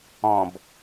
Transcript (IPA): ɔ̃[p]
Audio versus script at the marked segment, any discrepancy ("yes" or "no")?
yes